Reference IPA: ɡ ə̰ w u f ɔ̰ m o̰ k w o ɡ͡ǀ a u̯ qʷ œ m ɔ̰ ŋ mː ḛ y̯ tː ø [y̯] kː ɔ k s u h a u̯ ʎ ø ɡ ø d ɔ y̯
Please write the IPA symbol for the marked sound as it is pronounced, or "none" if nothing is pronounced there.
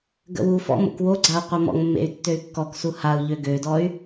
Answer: y̯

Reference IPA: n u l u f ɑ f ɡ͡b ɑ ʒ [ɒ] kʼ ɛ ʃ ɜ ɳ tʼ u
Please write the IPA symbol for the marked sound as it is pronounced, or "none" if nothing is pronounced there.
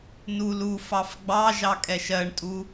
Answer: ɑ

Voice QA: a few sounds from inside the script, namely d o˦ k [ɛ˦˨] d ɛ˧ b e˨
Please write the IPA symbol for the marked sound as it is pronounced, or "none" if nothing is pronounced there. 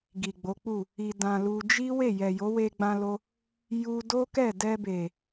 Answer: ɛ˦˨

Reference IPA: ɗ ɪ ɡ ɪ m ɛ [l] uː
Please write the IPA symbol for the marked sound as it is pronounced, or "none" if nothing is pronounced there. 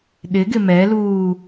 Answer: l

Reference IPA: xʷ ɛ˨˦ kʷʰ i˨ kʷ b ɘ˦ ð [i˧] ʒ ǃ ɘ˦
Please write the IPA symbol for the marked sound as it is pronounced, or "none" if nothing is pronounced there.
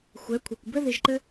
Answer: i˧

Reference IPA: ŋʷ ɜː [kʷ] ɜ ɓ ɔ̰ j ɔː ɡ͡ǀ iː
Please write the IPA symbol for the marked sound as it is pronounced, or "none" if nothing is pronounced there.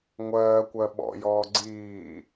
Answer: kʷ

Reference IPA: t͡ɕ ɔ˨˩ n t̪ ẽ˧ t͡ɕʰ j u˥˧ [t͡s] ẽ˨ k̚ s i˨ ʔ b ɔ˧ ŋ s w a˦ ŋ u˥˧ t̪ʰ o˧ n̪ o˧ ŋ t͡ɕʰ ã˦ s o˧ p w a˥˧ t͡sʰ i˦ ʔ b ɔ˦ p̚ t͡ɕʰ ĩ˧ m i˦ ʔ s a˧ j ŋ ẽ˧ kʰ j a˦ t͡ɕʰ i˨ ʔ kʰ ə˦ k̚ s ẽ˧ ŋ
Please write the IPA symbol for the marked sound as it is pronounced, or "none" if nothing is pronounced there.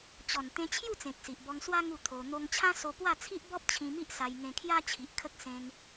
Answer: t͡s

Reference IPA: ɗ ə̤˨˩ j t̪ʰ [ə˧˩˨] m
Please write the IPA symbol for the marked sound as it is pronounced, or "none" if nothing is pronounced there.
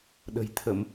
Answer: ə˧˩˨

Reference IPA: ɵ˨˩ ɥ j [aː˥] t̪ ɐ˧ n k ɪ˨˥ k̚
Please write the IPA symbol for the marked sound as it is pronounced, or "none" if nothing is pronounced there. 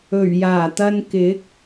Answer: aː˨˩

